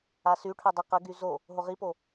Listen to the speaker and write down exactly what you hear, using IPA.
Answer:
a s y ʈʰ œ dˤ ə q ə ɡ y z o | ɦ o ʁ i p o

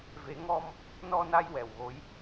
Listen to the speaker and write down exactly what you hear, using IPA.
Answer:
v e˨˩˦ ŋ ɔ˧ m | n ɔ˧ n a˧ j w ɛ˨˩ w ɣ o˧˥ j

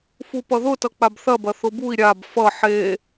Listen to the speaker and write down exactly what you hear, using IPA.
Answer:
f u p ʌ ð ʊ t ʌ k͡p a b θ ɐ b ɐ θ ʊ b u i̯ ɾʲ a b f ʌ ħ e

